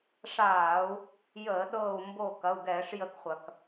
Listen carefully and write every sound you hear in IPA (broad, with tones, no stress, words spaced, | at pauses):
ʂaː˧˩˧u̯ | jəː˧˩˧ ɗɤː˧˩u̯ mbo˧˩kɐ˩˧˩u̯ɡɛː˧˩˧ʂ jə˧˩˧kχʷɐ˩k